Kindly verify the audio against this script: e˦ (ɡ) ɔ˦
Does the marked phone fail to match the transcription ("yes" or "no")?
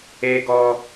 no